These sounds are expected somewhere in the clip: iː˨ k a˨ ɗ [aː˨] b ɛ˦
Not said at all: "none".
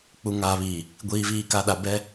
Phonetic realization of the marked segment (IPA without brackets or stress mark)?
a˨